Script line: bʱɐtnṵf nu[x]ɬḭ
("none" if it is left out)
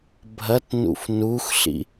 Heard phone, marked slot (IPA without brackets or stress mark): x